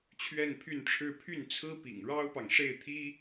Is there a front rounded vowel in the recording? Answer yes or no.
yes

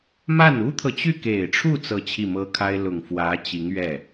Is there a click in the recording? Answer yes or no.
no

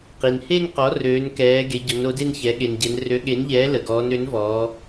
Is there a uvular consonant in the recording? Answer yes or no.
yes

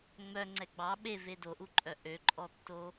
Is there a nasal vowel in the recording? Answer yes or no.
no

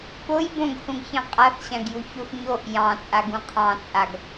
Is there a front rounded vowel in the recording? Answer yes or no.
no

